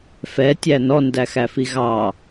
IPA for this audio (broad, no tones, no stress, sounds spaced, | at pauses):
f ɛ tʲ æ n ɔ n d æ x æ f i ɣ ɑ